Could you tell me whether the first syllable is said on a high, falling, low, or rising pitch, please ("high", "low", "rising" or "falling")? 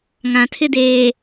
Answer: low